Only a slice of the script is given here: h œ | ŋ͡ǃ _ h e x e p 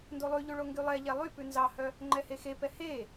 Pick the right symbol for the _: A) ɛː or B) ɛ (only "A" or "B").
B